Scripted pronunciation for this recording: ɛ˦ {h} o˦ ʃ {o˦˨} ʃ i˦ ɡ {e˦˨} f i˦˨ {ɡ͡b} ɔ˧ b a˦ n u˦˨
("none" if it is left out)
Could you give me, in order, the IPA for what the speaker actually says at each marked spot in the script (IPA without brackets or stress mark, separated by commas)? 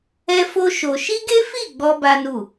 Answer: f, o˧, e˦, ɡ͡b